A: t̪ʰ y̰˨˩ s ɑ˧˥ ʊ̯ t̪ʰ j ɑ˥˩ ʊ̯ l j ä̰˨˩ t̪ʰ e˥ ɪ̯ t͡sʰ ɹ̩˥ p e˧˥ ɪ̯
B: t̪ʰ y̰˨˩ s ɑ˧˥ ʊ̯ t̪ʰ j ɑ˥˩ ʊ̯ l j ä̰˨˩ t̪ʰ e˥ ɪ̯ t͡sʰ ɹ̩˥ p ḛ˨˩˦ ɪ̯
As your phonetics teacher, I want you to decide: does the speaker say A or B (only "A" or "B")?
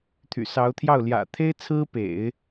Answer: B